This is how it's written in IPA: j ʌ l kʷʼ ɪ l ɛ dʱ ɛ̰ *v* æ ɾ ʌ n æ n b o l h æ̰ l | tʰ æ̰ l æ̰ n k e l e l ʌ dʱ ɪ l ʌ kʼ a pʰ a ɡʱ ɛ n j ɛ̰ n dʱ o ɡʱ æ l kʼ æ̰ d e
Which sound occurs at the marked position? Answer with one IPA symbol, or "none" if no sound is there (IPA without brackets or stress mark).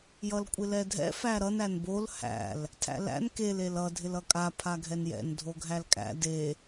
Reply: f